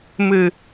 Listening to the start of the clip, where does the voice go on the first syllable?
low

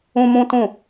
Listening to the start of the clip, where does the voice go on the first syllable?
high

